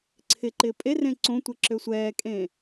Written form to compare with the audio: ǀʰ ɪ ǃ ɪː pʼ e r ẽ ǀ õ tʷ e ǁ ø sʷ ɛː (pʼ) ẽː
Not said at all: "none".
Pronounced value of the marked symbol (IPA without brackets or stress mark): kʼ